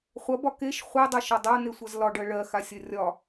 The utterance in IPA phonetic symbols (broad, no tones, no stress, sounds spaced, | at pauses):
χʷ ɐ b ɒ k e ʃ χʷ e dˤ ɐ ʃ ɒ dˤ a n̪ e sʷ ɐ z l ɒ ɖ ɜ ɭ ɜ x a sʲ ɐ rʲ ɒ